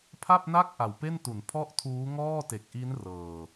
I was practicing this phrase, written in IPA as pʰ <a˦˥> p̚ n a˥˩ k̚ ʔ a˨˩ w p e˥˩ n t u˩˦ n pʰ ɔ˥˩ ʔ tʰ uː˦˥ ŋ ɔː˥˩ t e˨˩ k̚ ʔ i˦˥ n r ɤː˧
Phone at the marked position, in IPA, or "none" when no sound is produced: a˥˩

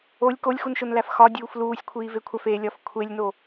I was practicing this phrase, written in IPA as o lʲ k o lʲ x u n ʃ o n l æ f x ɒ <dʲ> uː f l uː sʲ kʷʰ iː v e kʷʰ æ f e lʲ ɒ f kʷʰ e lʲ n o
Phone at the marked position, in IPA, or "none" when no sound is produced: dʲ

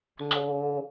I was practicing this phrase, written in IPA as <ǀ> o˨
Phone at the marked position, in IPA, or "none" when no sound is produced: ŋ͡ǀ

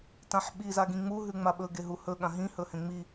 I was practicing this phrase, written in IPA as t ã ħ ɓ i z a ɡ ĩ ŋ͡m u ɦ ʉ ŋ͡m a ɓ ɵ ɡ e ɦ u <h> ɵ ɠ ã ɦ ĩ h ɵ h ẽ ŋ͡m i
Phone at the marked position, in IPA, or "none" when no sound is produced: h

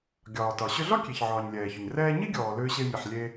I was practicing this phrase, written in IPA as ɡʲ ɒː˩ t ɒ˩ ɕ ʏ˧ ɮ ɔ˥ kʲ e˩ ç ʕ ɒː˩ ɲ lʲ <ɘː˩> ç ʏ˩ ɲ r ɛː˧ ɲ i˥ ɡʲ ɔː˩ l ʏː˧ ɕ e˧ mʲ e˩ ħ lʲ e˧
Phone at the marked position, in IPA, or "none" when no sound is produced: ɛː˩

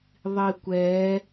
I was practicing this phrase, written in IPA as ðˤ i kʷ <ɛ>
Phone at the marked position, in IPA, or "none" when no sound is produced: ɛ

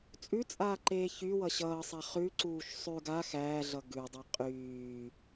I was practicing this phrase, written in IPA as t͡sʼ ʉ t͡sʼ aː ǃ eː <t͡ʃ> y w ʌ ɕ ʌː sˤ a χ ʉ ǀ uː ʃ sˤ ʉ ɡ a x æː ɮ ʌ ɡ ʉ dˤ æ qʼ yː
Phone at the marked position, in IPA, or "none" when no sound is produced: ç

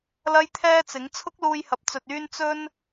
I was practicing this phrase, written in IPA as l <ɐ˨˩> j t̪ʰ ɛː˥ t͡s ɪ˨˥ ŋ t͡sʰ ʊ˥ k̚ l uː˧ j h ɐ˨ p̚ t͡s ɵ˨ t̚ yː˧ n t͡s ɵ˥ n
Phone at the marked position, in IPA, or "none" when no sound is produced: ɐ˥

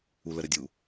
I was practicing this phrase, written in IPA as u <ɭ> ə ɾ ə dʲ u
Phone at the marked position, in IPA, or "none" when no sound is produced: l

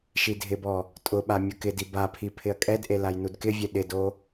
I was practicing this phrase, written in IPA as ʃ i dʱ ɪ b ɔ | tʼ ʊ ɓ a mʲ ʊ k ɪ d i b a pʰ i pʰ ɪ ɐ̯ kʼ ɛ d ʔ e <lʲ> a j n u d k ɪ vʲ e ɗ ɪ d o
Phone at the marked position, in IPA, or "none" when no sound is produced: l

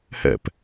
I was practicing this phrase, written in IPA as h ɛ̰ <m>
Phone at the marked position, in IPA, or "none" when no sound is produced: p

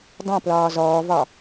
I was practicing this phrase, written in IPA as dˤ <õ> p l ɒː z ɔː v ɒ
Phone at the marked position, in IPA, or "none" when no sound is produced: õ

